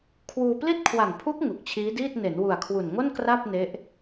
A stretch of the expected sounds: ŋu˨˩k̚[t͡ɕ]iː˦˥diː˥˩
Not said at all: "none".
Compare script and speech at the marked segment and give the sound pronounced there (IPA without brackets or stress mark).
t͡ɕʰ